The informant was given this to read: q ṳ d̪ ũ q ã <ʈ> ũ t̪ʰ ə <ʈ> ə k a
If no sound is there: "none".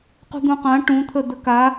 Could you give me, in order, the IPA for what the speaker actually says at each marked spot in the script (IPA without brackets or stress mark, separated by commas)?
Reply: ʈ, d̪